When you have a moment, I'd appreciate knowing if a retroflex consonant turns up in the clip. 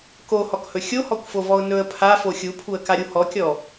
no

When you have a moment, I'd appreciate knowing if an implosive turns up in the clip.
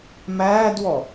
no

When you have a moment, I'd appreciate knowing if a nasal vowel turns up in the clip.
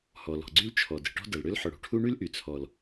no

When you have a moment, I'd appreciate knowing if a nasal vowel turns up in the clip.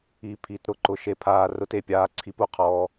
no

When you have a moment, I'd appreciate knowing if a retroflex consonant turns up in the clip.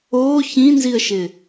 no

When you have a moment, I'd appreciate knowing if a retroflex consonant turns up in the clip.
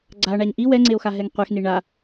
yes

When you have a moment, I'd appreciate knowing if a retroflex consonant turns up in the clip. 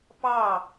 no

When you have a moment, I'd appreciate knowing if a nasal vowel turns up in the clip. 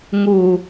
no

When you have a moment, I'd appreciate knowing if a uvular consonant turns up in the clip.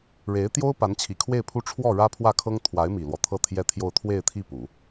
no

